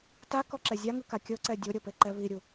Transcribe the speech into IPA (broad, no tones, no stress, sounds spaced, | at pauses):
t a k ɔ ǁ ɛ zʲ a ŋ ɯ k a kʲ ɤ ǀ ɛ dʲ o ɾʲ ɤ p e ǃ ɛ β i ɾʲ u